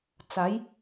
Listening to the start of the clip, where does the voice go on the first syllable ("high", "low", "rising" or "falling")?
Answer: rising